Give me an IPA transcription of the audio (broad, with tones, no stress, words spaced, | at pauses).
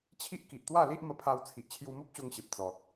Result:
t͡ɕʰi˦ʔ ki˨ʔt̪wa˥˧li˦ʔ mə˧pʰa˧w t͡sʰi˨ʔ t͡ɕʰju˧mo˦p̚ɕo˧ŋɕe˨p̚ t͡sɔ˨t̚